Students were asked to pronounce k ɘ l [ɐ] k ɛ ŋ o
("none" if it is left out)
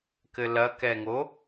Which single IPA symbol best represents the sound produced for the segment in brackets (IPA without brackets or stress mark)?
ɐ